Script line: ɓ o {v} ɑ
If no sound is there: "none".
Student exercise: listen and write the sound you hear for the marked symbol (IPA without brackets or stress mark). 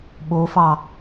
f